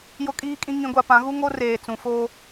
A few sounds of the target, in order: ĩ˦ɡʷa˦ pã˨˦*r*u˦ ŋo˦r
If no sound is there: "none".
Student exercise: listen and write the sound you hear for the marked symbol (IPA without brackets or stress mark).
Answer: ɣ